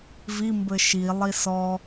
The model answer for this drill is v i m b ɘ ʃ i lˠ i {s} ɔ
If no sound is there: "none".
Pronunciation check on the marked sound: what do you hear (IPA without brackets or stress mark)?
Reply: s